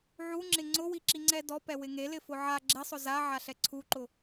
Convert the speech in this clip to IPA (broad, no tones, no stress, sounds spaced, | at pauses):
ʕ u ŋ͡ǁ ɪ ŋ͡ǀ ʊ w i ǁ i ŋ͡ǀ ɛ d ɔ p ɛ w ɪ ŋ e l ɪ f ʊ ʕ a ɡ͡ǁ e sˤ ʊ z a ʕ a ɬ ɛ ǀʰ u ǃ ʊ